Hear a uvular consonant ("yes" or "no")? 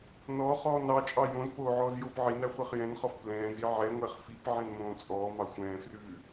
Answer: yes